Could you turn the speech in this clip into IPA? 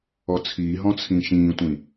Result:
ɔt͡sʰiːɦɔ̃ t͡sʰĩʃĩːtʷĩ

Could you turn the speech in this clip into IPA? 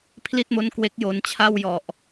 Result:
pʰli˥˩t̚mo˦˥n kwe˦˥k̚jo˧n t͡ɕʰa˥˩wjɔ˨˩ʔ

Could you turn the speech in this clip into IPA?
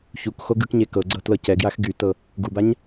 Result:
çukxo ɡɯkɲe kɤɡ͡ǀɤ tlɤcɛɡjax ɡytɤ | ɡubaɲ

